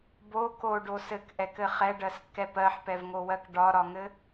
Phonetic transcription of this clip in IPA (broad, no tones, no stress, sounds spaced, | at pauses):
b o k o ɖ o s ɘ k ʔ ɛ k ɘ χ ɛ ɖ ɜ s kː ɛ p ɜ ħ p ɛ v ŋ o w ɜ k ɖ ɒ ɾ ɒ ŋ ɘ